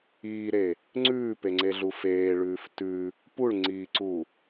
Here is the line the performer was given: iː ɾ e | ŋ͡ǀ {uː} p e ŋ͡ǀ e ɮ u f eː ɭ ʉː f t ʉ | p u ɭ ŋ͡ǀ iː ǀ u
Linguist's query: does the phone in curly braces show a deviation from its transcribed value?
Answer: yes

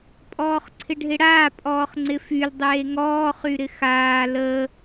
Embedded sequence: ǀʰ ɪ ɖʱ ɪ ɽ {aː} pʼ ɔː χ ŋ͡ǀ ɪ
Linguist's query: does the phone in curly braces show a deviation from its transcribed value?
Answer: no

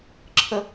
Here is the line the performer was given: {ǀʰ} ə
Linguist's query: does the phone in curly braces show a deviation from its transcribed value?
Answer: yes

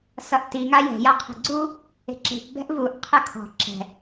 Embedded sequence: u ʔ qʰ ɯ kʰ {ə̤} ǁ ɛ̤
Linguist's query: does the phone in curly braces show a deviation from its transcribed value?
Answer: yes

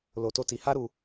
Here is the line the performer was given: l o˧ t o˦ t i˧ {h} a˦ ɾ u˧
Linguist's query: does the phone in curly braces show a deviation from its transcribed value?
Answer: no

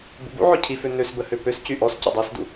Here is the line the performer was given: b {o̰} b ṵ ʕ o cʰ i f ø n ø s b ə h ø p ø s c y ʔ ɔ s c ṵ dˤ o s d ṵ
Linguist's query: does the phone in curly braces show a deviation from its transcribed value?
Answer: yes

